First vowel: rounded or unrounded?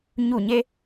rounded